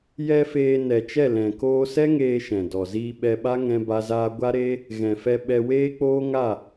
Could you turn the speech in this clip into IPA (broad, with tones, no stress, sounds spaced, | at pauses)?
j ɛ˧ f eː˧ n ɛ˨ t͡ʃ ɛ˦˨ l ɛ̃˨ k oː˧ s ɛ˦ ŋ eː˧ ʃ ɛ̃˨ d ɔ˨ z iː˧ ɓ ɛ˧ ɓ a˦ ŋ ɛ̃˦ b a˦ z aː˦ ɡʷ a˦ ɾ e˦ | ɣ ɛ̃˨ f ɛ˧ ɓ ɛ˧ w eː˦ k͡p oː˦ ŋ a˦˨